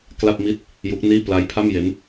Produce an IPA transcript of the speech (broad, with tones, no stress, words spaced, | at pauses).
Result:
kla˥˩p̚mi˥˩t̚ | ju˦˥k̚niː˥˩ pla˦˥jpʰa˥˩mje˦˥n